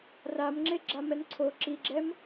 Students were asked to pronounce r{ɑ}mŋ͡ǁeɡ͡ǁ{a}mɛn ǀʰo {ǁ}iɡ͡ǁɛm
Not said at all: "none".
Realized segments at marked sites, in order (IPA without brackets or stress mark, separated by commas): a, a, ǁ